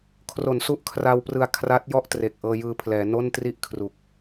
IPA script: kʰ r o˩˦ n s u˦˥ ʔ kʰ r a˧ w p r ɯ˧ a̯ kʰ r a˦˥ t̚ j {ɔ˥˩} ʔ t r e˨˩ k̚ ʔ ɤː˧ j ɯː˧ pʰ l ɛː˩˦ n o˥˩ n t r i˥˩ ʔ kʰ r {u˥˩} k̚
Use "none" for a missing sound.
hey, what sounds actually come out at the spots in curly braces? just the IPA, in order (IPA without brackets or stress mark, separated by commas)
ɔ˥˩, u˨˩